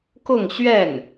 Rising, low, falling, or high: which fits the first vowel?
falling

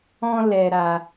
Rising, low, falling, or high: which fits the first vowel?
high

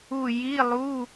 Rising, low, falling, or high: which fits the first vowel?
falling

